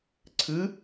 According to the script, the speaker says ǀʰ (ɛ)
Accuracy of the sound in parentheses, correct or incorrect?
incorrect